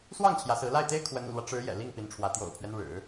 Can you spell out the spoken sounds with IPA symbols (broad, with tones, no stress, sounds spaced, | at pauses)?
s w ɑ˥˩ ŋ t͡ɕʰ j ä˧˥ s ɹ̩˧˥ l a˥˩ ɪ̯ t̪ e˥ ɪ̯ kʰ w ə˧˥ n ṵ˨˩ l w ä˦ ʈ͡ʂ ɻ̩˧˥ j ɛ̰˨˩ l i˥˩ ŋ p i˧˥ n ʈ͡ʂʰ w ä˧˥ t̪ j o̰˨˩ ʊ̯ pʰ ɥ ɛ˦ n ɻ ɻ̩˨˩˦